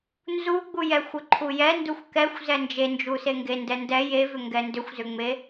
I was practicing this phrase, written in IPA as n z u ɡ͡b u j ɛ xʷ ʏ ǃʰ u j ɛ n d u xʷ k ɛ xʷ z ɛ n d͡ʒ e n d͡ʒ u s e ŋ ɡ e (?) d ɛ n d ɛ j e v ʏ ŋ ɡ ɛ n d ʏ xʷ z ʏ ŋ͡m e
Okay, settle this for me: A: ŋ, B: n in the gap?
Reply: B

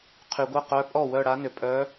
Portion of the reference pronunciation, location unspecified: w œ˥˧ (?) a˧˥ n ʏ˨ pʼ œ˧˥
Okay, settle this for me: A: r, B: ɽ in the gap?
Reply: B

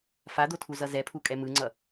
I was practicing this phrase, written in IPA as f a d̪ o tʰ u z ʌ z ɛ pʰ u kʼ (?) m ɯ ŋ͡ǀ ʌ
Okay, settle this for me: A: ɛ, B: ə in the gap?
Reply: A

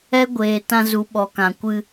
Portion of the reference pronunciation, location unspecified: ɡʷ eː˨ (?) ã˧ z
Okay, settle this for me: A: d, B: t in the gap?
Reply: B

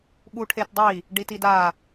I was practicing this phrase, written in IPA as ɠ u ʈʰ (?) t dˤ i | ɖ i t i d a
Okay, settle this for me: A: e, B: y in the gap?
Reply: A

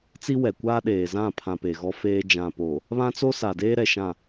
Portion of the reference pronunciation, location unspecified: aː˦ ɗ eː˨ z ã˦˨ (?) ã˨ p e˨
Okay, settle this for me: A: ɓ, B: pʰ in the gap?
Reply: B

